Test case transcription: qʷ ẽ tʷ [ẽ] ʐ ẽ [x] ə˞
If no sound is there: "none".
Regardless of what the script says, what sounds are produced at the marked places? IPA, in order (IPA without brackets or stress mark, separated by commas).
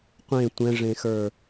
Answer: ɛ̃, x